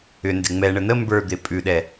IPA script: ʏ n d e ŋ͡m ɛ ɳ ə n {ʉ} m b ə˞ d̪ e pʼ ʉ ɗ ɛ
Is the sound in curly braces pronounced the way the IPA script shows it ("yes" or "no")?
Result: no